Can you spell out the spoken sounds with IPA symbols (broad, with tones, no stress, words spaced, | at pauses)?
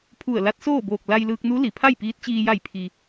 pʰu˧˩ə̯la˧˥t̚ soː˥˨boː˧˩k̚ la˧jlɯː˧k̚nu˧˥ li˩pʰa˥˨jpiː˧˥t̚t͡ɕiː˧ ja˧˩jpʰi˩